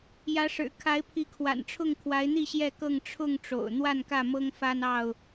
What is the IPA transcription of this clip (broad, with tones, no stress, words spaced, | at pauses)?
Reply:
jä˨˦ʂɻ̩˨˩ kʰa˨˦ɪ̯pʰi˨˦kʰwa̰˨˩nʈ͡ʂʰʊ˥˨ŋ kʰwa˨˦ɪ̯n̪i˥˨ ɕjɛ˥˨kɤ˥˨ŋ ʈ͡ʂʰʊ˥˨ŋ ʈ͡ʂo̰˨˩ʊ̯ n̪wa˥˨nkä˥˨mɤ˦ŋfa˦n ɑ˥˨ʊ̯